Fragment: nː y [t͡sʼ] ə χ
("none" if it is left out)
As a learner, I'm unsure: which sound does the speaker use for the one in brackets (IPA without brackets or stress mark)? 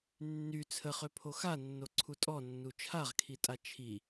t͡sʰ